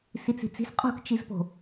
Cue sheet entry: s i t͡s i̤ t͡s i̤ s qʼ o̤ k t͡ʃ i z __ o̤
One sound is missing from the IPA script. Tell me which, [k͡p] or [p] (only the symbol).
p